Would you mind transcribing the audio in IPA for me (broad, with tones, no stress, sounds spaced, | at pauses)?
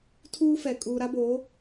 tʰ uː˦ f ɛ˨ kʼ uː˨ ɾ a˦ b o˨˦